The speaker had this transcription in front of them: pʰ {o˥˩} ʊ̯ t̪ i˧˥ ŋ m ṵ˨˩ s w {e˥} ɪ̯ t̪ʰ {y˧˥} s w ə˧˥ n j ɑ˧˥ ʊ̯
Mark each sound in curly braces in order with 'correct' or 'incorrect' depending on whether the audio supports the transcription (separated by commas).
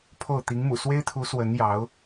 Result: correct, correct, incorrect